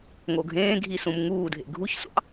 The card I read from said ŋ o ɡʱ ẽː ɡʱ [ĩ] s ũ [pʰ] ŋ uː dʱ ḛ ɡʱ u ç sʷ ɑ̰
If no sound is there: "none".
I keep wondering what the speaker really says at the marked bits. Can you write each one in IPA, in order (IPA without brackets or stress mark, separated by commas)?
i, m